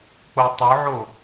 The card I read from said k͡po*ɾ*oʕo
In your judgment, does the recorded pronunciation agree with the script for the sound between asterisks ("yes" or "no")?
no